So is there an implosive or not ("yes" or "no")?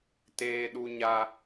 yes